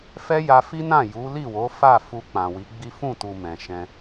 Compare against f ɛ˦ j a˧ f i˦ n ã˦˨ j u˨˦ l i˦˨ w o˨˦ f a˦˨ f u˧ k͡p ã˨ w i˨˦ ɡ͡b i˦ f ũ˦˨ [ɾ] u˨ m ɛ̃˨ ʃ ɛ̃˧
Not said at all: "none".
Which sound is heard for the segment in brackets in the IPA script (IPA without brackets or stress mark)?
t